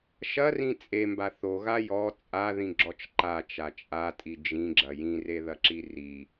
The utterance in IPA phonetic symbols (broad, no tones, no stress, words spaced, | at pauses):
ʃɐrĩ t͡sʼemba θoɣa jɔ t͡sʼaðĩɡ͡ǁɔt͡ʃ ǃat͡ʃa t͡ʃʼatʼi d͡ʒĩɡ͡ǁɐ jĩreðɐǁi ri